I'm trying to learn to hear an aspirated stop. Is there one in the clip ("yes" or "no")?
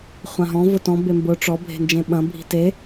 no